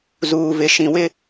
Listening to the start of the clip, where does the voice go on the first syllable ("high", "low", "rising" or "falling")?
low